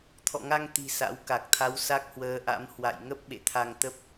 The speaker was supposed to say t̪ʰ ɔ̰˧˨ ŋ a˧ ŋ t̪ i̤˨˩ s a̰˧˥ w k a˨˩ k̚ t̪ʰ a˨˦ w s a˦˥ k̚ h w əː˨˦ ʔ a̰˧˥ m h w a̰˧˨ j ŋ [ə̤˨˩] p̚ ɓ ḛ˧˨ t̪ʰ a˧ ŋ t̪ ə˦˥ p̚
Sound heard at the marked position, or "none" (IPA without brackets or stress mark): ə˦˥